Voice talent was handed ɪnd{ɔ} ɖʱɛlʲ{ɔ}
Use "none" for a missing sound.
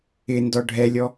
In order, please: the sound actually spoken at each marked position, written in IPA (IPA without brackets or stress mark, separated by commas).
ɔ, ɔ